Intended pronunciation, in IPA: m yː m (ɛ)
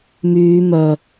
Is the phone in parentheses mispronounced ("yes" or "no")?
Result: yes